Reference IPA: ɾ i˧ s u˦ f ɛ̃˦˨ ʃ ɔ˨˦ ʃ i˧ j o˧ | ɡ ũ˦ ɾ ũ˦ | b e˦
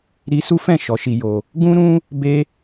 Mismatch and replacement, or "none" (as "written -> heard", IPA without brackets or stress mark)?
none